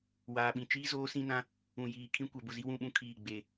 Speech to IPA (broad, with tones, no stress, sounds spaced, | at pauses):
w aː˨ ɓ ĩ˨ t͡ʃ iː˦ z oː˦ s ĩ˦ n ã˦ | ũ˨ j iː˨ kʰ ĩ˦ kʷ ɛ˨ b ʊ˦˨ z i˦ w ũ˦˨ ɓ ũ˦ kʰ iː˦˨ ɡ͡b e˦˨